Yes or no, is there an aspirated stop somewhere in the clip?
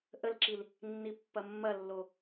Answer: no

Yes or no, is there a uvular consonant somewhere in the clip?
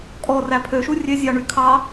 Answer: no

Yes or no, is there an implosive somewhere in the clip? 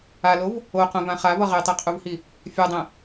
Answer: no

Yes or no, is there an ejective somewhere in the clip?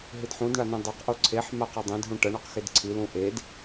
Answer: no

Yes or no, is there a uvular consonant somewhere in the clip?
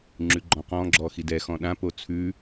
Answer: yes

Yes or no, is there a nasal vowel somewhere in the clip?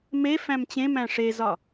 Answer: yes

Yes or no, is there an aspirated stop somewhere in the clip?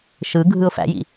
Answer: no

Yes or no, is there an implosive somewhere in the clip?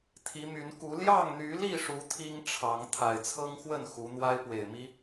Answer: no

